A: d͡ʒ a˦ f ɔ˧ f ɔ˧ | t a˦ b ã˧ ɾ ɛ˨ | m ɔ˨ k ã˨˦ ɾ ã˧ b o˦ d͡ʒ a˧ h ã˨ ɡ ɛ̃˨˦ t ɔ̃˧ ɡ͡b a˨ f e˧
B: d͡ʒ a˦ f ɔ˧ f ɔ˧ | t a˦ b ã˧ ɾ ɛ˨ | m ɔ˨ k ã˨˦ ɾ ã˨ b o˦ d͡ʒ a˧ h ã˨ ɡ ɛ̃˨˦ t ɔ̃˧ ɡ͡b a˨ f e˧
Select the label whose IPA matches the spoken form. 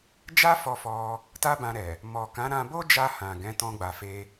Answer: A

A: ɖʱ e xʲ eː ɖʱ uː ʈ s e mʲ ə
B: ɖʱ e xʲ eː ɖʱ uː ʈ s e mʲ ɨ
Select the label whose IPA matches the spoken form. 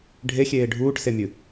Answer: B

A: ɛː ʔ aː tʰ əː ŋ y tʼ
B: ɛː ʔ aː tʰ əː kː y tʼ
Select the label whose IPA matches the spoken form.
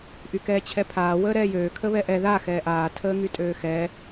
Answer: A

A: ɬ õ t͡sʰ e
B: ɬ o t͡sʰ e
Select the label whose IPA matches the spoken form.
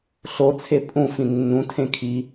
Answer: B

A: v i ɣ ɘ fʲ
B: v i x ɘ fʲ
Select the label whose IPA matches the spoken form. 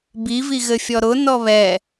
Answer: A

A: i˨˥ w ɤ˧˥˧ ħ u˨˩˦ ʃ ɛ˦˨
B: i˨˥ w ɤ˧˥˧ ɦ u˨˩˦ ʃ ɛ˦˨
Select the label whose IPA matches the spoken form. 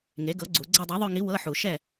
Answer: A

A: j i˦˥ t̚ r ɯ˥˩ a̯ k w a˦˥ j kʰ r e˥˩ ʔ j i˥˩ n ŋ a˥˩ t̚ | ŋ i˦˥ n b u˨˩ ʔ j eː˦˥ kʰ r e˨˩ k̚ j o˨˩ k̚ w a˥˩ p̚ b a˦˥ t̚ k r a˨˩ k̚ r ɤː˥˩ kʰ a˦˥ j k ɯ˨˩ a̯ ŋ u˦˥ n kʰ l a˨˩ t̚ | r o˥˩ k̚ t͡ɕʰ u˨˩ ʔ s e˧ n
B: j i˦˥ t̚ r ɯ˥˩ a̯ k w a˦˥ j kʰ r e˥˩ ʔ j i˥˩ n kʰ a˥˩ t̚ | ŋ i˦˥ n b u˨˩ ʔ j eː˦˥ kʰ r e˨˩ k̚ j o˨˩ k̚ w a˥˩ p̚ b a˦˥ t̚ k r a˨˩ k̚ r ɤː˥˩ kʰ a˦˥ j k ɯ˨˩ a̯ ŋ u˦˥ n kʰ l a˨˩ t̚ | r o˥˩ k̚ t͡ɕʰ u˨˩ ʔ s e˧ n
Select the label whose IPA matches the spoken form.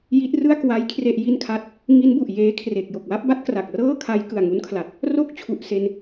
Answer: B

